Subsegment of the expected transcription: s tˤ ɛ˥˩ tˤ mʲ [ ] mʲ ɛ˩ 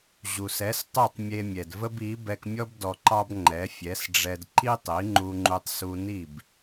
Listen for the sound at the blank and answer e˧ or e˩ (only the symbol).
e˧